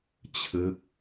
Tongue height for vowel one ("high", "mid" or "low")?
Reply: high